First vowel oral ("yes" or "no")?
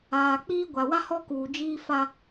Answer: yes